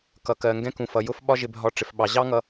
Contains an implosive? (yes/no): yes